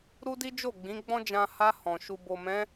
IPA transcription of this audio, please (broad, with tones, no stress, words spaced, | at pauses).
ɾu˦di˦d͡ʒo˦˨ ɡ͡bĩ˨˦ɡ͡bɔ̃˦d͡ʒã˧ ha˧ hɔ̃˨ ʃu˨bo˨mɛ̃˨˦